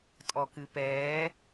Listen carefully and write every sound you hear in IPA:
tʼ ɔ k ɨ p ɛː

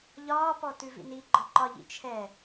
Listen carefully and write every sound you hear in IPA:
ʎ ɒː p ɔ t ʉ v ḭ n i ɡ͡ǃ ɒ ǃ ɒ ʎ ḭ t͡ʃʰ ɛ

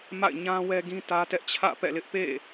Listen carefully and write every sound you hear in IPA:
m a̰˦˨ ɪ̯ ɲ ã˦ w ɛ˦ ɡ ĩ˦ t ä˦ t ɛ˦ ʔ t͡ɕʰ ä̰˦˨ p ɛ̰˦˨ l ɪ˦ ʔ p ḛ˦˨

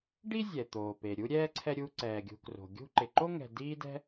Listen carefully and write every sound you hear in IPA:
ɖ i˥ zʲ ɛ˩ t̪ oː˩ p e˩ ɾʲ u˥ ɾʲ ɛː˥ ǀʰ ɛ˦ ɾʲ u˦ ǀ ɛː˩ ɡʲ ṳ˨ k r o̤˩ ɡʲ ṳ˥ ǃ ɪ˨ ǃ o˥ ŋ ɛ̤˨ d iː˦ d ɛ̤˦

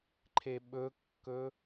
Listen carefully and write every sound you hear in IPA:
ǃʰ e ɓ ɵ kː ɵ

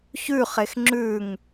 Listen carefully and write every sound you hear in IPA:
ç ʉ χ e x ŋ͡ǁ ʉ ŋ

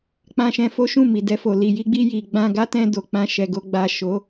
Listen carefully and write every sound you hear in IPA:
k͡p ã˧ ʃ ɛ̃˧ f o˦ ʃ ũ˦˨ m i˨ d ɛ˧ f o˨ l i˨ j i˧ ɡ͡b i˧ j i˨ ɡ͡b ã˧ ɡ a˦ t ɛ̃˧ d o˨ k͡p ã˧ ʃ ɛ˨ ɡ o˨ ɡ͡b a˨ ʃ o˨˦

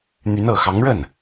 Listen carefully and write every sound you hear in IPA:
n̪ y˧˥ n ɤ˨˩ x ɑ˧˥ ŋ ɻ ə˥˩ n

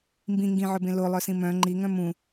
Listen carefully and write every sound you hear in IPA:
m b ĩ ŋ ɡ ĩ ʕ ɵ b ẽ l o lˠ œ s ĩ m œ̃ ŋ͡ǃ i ŋ œ̃ m ũ

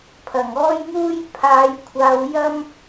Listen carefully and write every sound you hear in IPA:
pʰ ɐ˨˩ ŋ ɔː˥ j ŋ uː˥ j pʰ aː˨˧ j kʷʰ aː˨˧ w j ɐ˥ m

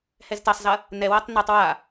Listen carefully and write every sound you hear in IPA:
h ɛ z t ɐ sˤ z ɐ | n ɛ w ɐ tˤ n a tˤ w a

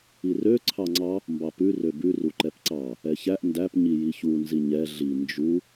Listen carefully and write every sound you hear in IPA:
i r ø ǀʰ ɑ ŋ͡ǀ ɑ | m b ɑ p ʉ r ø b ʉ r u ǃ ɛ p ǀ ɑ | ɛ ç æ ʔ n d æ p ɲ i j i ç u n z i ɲ ɛ ɮ i n d͡ʒ u

